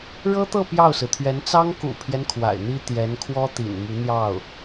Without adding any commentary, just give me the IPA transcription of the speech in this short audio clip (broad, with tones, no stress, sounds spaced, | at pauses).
ɻ ɤ˥ t̪ ɤ˥˧ p j ɑ˥˩ ʊ̯ s ɹ̩˩ t̪ʰ ɥ ɛ˧˥ n t͡s ɑ˥ ŋ k ṵ˨˩ pʰ j ɛ˦ n kʰ w a̰˨˩ ɪ̯ n̪ i˥ t̪ j ɛ˧˥ n kʰ w ɔ˥ t̪ ḭ˨˩ n m y˧˥ n̪ j ɑ˥˩ ʊ̯